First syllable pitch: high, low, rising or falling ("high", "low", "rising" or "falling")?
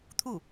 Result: falling